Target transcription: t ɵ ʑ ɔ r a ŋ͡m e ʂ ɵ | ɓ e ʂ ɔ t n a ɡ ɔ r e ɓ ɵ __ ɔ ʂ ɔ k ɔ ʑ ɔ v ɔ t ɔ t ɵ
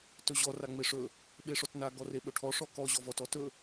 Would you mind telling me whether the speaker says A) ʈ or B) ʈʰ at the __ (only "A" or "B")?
B